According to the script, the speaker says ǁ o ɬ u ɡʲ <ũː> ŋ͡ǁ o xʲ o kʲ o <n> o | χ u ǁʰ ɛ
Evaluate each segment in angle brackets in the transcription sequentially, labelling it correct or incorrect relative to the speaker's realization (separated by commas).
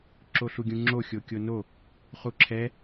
incorrect, correct